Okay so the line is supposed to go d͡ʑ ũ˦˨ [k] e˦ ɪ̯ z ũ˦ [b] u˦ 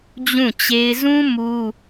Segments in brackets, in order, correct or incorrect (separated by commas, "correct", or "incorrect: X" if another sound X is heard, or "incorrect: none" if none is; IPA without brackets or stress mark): incorrect: t͡ɕ, incorrect: m